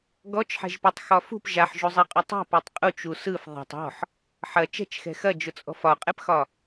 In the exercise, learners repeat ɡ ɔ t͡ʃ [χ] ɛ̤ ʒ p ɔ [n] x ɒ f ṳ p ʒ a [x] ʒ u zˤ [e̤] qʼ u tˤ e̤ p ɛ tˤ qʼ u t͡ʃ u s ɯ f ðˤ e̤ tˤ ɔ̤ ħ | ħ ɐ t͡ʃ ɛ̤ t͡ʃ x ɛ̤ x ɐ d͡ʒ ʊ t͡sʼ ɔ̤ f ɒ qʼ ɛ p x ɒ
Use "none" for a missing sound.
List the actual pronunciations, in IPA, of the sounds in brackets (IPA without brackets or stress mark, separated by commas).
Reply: ħ, tˤ, ħ, e